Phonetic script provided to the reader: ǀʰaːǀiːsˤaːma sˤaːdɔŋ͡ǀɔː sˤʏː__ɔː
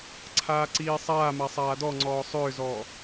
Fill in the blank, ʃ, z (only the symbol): z